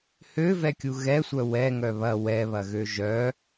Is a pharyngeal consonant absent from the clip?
yes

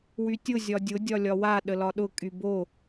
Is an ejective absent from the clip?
no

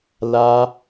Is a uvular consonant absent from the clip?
yes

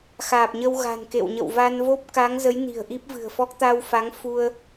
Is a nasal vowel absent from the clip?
yes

